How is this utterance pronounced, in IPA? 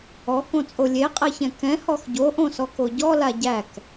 ɔkõt͡sʼo lʲeqʼɛçɛ̃ kɛ̃hɔx ɟoʔõsɔko ɟɔla ɟæk

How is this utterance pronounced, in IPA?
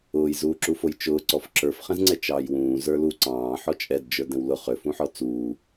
ʊːjzuːǁufoj t͡ʃʊːǀɔf ǁə˞fχɛ̃zŋ͡ǀɛ t͡ʃɑːjwũː zə˞lu ǀɑ̃ː ħɔt͡ʃʼɛdd͡ʒə˞ dɛ̃wlʊ χʏ fũħɔt͡suː

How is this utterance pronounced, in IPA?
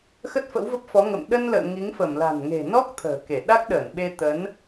xə˦˥t̚fə̰˧˥wvə˦˥p̚fɔ˨˦ ŋə̰˧˨m ɗə˧nlə̰ː˧˨ ŋi˨˦ŋfə˧˩m la̤˨˩nŋe̤˨˩nɔ˦˥k̚ t̪ʰə̤ː˨˩ke˧˩ ɗa˦˥k̚ɗəː˧˩nɓe˧ t̪ə˨˦n

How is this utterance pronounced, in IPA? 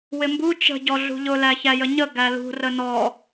wɪmbu t͡ʃə̤ ɟɔɮṳʎʊ læçæjəɲə ɡælṳ rənɔ

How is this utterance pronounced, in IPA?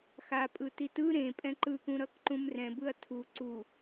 xapʼɯ titɯ ɾẽ pʼɛ̃ǃɯkũ ɾʌkǃũmrɛ̃bɯɐ̯ tʰu ǀu

